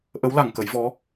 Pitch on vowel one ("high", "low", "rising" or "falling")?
rising